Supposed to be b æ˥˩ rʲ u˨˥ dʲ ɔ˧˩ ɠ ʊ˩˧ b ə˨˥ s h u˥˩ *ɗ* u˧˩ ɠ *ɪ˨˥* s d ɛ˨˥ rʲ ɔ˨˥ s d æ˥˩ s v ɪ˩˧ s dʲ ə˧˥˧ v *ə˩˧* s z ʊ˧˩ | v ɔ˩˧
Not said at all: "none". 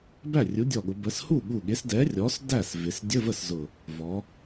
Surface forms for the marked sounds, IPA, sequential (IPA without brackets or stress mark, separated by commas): ɠ, ɪ˨˥, ə˥˩